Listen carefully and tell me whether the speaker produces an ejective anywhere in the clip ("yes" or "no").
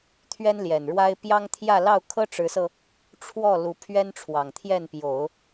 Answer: no